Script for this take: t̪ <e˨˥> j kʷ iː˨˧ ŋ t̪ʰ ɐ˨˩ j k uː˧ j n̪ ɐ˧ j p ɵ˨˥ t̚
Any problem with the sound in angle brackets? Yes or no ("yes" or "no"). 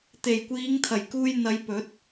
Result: yes